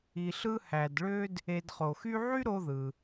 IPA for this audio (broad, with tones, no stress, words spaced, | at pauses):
i˨ɬɯ˦ hæ˩dɭø˦d | e˨dχo˩xy˦ʕy˥ ɾo˦ðɯ˩